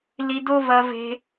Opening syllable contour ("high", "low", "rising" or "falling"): high